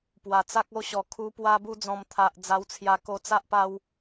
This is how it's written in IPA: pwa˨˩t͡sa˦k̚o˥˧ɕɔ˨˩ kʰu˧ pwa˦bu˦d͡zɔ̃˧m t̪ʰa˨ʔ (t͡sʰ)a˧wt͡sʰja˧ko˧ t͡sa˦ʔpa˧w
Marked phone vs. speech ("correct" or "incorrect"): incorrect